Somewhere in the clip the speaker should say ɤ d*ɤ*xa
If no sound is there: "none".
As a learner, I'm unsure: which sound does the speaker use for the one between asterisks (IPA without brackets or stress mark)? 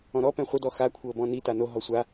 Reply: ɔ